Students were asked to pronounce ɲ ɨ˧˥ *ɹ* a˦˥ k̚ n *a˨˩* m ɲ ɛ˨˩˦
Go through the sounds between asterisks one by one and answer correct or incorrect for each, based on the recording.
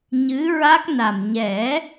correct, correct

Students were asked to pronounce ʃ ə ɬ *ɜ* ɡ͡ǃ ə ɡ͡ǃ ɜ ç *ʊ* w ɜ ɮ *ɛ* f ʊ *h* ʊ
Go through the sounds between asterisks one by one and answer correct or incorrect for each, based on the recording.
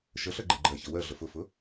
correct, incorrect: ə, incorrect: ə, incorrect: f

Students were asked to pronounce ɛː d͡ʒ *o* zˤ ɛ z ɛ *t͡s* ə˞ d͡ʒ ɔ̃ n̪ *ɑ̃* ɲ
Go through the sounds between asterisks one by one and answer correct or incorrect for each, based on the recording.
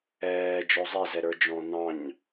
incorrect: ɔ, incorrect: ɾ, correct

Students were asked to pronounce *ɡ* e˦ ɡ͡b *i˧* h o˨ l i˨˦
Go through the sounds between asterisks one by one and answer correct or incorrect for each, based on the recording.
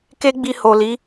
incorrect: k, correct

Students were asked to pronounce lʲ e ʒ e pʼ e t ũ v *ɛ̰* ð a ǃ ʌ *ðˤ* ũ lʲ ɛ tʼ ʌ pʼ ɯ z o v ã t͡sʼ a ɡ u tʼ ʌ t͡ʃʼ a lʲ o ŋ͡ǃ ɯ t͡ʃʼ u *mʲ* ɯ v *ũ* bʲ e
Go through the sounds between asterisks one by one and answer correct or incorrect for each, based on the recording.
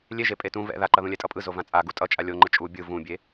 correct, incorrect: ð, incorrect: bʲ, correct

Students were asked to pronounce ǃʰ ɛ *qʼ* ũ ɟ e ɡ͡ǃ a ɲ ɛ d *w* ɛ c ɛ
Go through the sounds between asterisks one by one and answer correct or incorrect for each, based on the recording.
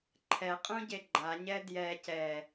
correct, incorrect: j

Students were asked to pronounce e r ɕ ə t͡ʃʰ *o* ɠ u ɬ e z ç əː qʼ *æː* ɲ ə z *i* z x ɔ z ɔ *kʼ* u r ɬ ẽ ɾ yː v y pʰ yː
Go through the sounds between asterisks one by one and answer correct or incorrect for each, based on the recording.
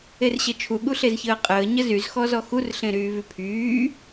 incorrect: u, incorrect: əː, incorrect: y, incorrect: x

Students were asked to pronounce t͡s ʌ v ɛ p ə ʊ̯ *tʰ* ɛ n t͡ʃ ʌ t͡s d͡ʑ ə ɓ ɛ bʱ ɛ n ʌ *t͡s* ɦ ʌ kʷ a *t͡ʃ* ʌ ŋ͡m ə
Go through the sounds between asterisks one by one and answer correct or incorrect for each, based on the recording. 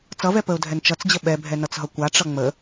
incorrect: dʱ, correct, incorrect: ʈ͡ʂ

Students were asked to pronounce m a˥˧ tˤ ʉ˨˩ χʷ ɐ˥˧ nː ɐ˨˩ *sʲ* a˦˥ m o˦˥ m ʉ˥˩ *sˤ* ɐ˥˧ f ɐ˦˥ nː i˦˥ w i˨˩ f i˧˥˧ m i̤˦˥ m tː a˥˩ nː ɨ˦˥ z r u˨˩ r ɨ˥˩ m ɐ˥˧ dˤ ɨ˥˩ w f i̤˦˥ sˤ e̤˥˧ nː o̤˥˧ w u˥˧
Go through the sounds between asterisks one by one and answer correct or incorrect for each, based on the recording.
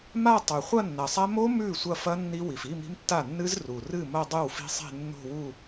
incorrect: sˤ, incorrect: sʷ

